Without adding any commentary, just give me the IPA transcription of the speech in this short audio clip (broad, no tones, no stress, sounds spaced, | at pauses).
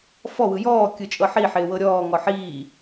f ɔ w ɯ j ɔː kʲ ɯ t͡ʃʼ ɤ ħ i ħ ɪː w ɤ ɾʲ ɔː ŋ ɔ ħ iː